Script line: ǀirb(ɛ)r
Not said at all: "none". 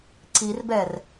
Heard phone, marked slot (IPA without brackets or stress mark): ɛ